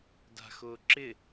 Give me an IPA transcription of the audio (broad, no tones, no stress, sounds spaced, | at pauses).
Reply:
d a̤ x ʊː ǁ ɪ